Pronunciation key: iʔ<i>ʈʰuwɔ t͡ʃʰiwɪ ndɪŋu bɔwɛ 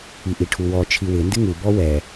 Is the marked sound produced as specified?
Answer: yes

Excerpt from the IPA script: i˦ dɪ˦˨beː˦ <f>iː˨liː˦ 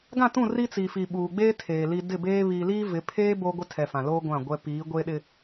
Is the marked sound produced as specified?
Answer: no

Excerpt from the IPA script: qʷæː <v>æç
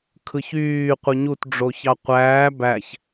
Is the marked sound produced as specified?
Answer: no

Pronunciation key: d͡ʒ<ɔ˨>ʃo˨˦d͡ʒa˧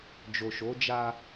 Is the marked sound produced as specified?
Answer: no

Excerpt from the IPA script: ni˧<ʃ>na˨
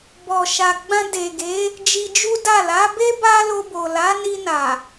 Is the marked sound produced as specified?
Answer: no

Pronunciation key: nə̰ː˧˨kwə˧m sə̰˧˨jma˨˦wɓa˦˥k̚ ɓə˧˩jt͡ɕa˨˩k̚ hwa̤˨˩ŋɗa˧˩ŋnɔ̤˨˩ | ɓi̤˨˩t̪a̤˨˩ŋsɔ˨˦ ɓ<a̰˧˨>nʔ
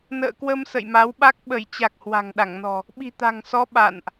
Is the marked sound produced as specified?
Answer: yes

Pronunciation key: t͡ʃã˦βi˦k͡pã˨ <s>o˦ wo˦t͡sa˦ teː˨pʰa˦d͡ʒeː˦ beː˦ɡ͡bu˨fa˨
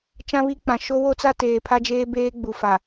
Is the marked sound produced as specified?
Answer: no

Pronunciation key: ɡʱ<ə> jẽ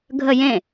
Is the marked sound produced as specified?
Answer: yes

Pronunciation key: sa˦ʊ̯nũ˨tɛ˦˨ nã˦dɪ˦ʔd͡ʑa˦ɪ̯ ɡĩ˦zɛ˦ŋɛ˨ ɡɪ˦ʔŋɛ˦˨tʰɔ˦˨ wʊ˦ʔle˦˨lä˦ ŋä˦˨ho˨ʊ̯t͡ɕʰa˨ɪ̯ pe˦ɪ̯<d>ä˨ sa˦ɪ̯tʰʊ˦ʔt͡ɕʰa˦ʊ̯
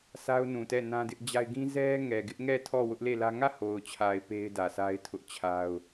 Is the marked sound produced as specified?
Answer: yes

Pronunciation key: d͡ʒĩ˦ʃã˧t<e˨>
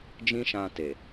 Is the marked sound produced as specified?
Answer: yes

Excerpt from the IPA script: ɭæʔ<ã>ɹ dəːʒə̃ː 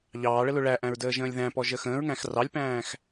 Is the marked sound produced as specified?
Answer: no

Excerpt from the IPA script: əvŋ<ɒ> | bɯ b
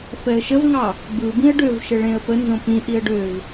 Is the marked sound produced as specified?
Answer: no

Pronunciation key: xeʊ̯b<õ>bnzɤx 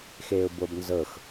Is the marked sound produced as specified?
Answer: no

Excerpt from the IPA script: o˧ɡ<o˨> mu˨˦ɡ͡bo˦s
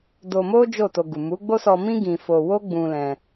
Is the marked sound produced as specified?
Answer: no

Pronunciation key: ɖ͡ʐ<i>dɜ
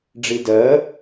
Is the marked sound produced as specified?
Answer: yes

